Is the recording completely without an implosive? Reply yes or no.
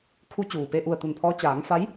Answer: yes